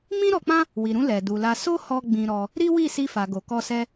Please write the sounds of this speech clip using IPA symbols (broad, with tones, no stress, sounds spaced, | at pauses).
m ĩ˦ ɾ ɔ˧ k͡p ã˦ | w i˨ ɾ ũ˧ l ɛ˨ d u˨ l a˧ s o˦ h ɔ˧ ɡ͡b ĩ˧ ɾ ɔ˧ | ɾ i˦ w i˦˨ s i˧ f a˨ ɡ o˨ k ɔ˧ s ɛ˦